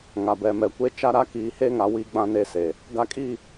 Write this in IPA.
ŋa˨ bɛ˨mɛ˨kʷe˦ t͡ʃa˦ ɾa˦kiː˨he˦ŋa˨ wi˦ɡ͡bã˦ ne˦se˨ | ɡa˦kʼi˦˨

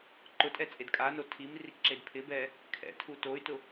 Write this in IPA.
ǃʊtʼɛ t͡sʼedkʼano tʰimrik ǁedpʰɪbɛ | kʰɛ̰tʰu toy̯tʊ

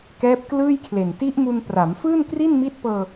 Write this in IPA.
kɛː˦˥p̚klɯː˥˩jkʰle˨˩n ti˦˥ʔmu˧npra˩˦m fɯː˥˩nkri˥˩nmi˦˥t̚ pɤː˧

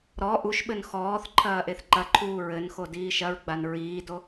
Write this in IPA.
ɾɔ ʔuʃɓɘn xɔːθ ǃʰɐːʔeθǃɐǃʰuː ɹɘnxo diːʃɐɹɡ͡ban ɹiːdo

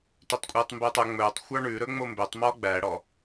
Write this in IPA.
tøtˤkʷʼɛːtˤmbɵːtˤœ ŋ͡mɵːtˤxʷɑ ɳʉ ɾɵŋ͡mombøtˤmɔ ɡ͡bæɽɔ

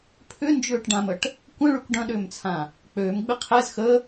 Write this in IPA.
pʰʏnd͡ʒʏːʈɖãməʈ | kʷə̃ɭykʷ ɖɐ̃ɗʏːmt͡sʰã | k͡pøːmɡ͡bɪ qʰɛz xə

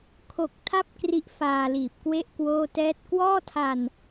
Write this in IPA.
kʰo˨˩k̚ tʰa˥˩p̚kri˦˥ʔ faː˧liː˨˩p̚kwe˥˩ʔ kwoː˥˩tɛː˥˩t̚ kwɔː˥˩tʰa˧n

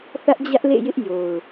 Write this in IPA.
θä˦ʔd͡ʑä˦ʔlḛ˦˨jɪ˦ʔ jo˨ʊ̯

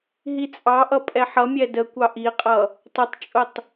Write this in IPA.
ɦit͡sʼɑʔʌ pʼɛħʌmʲɛ dəkʷɑ ʔiqʼʌ | tˤʊtˤt͡ʃʼʊtˤ

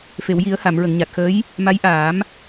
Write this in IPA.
fe˨˩˨wji˨˩˦ə̯ ha˨˩˨mɹə˨˩˨ŋɲa˨˩t̚xəː˧˥j | ma˧˥jʔaː˨˩˦m

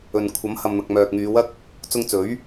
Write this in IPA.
ɵ˨n kʷʰɐ˨˥mhɐ˨mn̪ɐ˨k̚ mœː˨k̚ŋyː˨˧wɐ˥k̚ | t͡sʊ˧ŋt͡sɵ˨˥ɥ

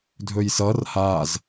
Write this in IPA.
dʱɵjsʌr haz

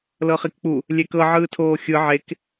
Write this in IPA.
lɤχikk͡pu | lʲekɤ ʕɯːtʰoːxʲɯ ʕek

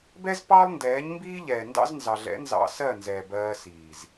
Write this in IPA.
bɛ˦z pɑ˦lˠndɛː˨˦ɲmbiː˦ʎɛː˨ ndɑ̰˦znzɑ˨ɮɛ̰˨˦nzɑ̰˧ sɜ˦˨nzɛː˨ bɜː˧siː˨z

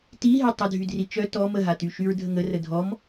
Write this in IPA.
tiɦe tˤədʱydri t͡ʃœ tɔ məɦaty ʃyɹdʱəŋə rədʱɔm

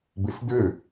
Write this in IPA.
besdø

